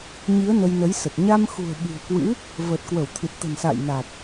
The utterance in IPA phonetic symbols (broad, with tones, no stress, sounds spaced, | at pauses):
ɲ i˨˦ ə̯ n ə˧ j n ə˨˦ j s ə˨˩ t̚ ɲ a˧ m x ṳ˨˩ ə̯ ɓ i̤˨˩ ə̯ k w ɨ̰˧˥ | v əː˨˩ t̚ k w ə˧˩ w t̪ʰ ɨ˨˩ t̚ t̪ ə̤˨˩ n s a̰ː˧˨ j n a˨˩ t̚